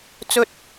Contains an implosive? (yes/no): no